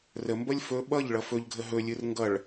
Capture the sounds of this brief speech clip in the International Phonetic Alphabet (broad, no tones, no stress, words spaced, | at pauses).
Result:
rəmbʌlʲ fɵ ɓʌʎɭʌ fɵʎɡʱə ɦɵlʲɯr ŋɡʌɭ